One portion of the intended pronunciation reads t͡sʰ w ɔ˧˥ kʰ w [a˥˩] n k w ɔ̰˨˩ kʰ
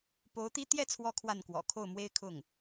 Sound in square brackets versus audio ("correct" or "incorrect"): correct